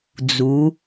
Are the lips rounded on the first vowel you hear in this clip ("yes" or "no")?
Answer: yes